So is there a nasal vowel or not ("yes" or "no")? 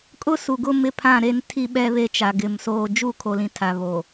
yes